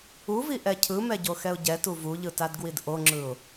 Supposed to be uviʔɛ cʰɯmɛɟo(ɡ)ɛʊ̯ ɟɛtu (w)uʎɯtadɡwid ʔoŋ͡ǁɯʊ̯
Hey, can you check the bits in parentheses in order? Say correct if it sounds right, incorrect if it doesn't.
incorrect: x, incorrect: v

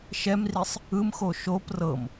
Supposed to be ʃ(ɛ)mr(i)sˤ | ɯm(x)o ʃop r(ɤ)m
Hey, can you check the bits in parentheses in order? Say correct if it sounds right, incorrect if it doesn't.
correct, correct, correct, correct

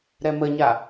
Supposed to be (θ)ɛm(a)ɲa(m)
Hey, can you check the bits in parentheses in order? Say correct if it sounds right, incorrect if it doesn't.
incorrect: ɾ, incorrect: ə, incorrect: none

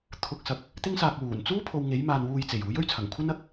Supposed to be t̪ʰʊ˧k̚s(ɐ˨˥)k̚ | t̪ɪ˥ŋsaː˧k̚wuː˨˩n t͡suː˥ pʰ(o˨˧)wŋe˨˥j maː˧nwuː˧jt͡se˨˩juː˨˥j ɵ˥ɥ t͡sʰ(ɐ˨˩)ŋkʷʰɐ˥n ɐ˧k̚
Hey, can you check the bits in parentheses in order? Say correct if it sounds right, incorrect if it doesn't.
incorrect: ɐ˧, incorrect: o˧, correct

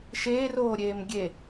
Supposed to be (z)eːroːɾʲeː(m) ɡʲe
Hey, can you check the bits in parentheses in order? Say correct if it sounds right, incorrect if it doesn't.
incorrect: ʃ, correct

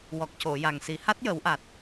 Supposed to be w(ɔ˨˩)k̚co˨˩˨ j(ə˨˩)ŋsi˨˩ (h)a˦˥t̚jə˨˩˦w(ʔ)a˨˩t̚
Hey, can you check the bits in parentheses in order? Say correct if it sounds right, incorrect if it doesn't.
correct, incorrect: a˨˩, correct, correct

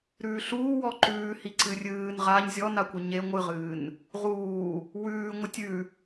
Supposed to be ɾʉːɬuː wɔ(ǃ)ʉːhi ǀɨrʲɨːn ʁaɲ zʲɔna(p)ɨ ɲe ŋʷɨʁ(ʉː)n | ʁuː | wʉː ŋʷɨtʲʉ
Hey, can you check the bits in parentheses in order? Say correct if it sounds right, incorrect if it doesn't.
correct, incorrect: kʷ, incorrect: ɨː

